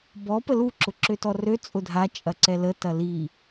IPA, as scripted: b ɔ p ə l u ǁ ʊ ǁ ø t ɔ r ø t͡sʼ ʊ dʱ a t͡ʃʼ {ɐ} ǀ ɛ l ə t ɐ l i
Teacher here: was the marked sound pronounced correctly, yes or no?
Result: yes